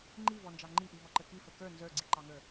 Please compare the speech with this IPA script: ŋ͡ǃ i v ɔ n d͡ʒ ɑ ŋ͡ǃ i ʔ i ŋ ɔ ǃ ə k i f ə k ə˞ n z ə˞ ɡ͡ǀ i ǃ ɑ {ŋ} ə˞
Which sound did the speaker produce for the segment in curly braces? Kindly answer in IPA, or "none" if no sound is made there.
ŋ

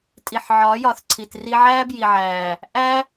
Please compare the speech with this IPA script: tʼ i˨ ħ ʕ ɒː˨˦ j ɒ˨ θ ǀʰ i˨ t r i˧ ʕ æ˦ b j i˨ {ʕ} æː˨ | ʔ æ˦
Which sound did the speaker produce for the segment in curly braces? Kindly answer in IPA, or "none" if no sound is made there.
ʕ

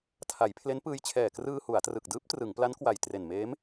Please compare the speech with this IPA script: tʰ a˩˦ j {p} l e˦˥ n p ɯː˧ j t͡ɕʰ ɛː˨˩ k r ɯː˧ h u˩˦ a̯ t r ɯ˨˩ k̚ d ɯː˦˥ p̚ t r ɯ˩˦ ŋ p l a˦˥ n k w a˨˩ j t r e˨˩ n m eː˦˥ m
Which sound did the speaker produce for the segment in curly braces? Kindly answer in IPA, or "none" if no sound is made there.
pʰ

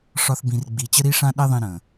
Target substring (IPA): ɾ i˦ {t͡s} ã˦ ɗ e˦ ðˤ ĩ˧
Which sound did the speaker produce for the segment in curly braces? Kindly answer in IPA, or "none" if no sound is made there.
ʂ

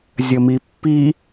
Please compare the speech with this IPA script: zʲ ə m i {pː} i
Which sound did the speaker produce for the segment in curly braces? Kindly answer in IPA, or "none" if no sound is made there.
pː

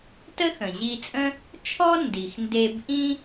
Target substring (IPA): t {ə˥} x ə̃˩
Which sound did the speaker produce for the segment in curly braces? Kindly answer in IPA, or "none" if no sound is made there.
ə˥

